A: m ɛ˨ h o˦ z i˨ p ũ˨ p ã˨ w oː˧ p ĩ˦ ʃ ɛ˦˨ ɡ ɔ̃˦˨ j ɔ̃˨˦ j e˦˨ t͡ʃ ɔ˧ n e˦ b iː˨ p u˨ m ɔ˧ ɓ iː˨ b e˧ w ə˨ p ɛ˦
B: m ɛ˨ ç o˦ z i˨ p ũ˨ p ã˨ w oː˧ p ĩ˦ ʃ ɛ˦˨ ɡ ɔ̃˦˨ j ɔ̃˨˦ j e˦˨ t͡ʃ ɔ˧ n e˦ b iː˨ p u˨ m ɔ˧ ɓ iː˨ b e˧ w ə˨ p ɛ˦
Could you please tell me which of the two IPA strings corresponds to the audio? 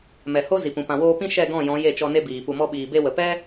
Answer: A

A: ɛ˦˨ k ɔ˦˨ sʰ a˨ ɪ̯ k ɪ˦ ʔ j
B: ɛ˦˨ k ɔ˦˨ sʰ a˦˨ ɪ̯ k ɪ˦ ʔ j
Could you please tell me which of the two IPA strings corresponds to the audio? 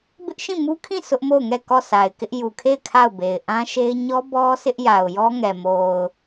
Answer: A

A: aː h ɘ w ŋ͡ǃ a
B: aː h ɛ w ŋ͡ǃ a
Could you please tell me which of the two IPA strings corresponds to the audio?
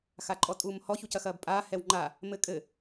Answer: B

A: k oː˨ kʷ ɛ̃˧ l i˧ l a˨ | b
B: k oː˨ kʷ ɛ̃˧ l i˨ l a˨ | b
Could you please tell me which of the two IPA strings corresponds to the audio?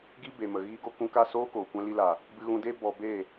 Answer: A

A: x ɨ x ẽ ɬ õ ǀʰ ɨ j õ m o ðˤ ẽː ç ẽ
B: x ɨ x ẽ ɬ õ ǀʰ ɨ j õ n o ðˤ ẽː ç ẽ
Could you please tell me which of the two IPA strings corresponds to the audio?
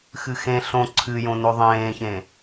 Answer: B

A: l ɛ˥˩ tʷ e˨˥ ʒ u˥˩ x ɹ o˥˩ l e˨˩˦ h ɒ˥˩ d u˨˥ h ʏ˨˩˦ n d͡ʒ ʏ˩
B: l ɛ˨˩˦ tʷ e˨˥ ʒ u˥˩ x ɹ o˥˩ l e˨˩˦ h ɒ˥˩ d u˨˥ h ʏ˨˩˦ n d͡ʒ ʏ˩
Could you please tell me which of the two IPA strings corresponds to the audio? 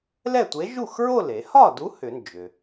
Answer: A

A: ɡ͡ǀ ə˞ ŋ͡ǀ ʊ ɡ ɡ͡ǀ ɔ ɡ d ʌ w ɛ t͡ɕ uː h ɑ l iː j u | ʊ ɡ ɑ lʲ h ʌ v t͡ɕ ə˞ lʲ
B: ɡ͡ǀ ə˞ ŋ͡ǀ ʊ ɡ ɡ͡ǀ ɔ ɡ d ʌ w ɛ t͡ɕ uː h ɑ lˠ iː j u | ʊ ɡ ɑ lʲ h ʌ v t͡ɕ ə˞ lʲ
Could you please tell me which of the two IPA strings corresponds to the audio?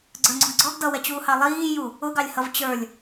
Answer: B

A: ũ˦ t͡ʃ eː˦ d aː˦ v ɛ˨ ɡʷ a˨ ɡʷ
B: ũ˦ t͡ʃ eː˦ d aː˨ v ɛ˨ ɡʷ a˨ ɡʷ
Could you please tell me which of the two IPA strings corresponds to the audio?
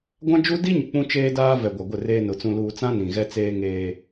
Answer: A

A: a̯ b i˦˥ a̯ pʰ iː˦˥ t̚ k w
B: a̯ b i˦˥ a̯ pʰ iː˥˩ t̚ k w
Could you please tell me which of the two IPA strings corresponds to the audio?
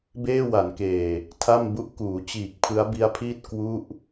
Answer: B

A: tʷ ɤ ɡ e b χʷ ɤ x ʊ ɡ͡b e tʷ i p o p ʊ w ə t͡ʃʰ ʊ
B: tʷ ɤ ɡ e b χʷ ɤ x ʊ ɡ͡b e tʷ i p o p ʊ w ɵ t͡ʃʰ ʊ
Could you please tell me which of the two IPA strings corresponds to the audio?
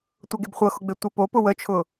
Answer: A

